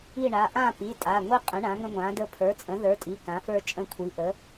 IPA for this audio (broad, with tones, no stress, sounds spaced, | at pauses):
i˦˨ ɳ a˩˧˩ ʔ ã˦˨ p i˩˧˩ tʼ a˩˧˩ ŋʷ i˦ qʼ ə̃˩˥ ɳ ã˩˥ ŋ ə̃˦ ŋʷ ã˩˥ d ə˦ pʰ ə˞˩˥ t͡sʼ ə̃˩˥ ð ə˞˩˥ tʼ i˩˧˩ k ã˩˥ f ə˞˦ t͡ʃʼ ə̃˦˨ kʷʰ i˩˥ ʔ ə˩˥